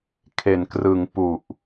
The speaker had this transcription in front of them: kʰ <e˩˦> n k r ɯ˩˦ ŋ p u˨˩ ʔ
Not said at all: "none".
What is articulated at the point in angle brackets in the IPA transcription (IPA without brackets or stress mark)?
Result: e˩˦